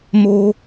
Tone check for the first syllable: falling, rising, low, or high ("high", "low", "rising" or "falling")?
high